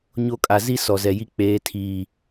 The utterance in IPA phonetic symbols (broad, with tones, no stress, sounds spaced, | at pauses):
ɲ o˦ kʼ a˨ z i˦ s ɔ˨ z ɛ˨ j i˦ k͡p eː˨˦ tʰ iː˨